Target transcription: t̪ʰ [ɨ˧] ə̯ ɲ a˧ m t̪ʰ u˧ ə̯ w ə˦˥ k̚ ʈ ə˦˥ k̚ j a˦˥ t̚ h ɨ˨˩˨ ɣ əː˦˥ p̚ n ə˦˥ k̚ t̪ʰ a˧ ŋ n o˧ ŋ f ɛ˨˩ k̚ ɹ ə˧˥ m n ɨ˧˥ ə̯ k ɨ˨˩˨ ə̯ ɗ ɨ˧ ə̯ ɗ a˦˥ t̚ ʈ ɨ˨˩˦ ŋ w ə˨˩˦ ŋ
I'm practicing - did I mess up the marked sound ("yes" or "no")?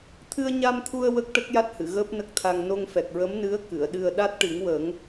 no